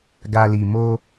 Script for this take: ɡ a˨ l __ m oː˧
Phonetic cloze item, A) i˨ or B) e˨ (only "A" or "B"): A